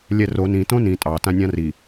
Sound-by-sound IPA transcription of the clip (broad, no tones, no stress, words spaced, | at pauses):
lʲɛro nĩ tõnĩ tʼɑtã nʲãri